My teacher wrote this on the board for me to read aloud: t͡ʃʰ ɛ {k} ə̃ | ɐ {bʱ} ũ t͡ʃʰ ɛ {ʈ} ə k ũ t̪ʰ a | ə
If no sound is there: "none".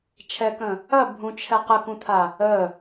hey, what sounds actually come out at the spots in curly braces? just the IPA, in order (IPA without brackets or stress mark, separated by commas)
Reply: k, bʱ, q